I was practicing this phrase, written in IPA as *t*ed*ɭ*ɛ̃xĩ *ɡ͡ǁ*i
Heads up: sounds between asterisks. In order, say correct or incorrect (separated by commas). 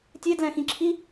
incorrect, incorrect, incorrect